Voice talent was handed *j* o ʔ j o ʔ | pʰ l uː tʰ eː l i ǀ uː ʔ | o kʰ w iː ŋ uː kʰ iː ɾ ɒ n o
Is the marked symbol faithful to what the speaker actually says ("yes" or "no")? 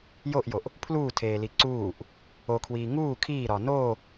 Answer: yes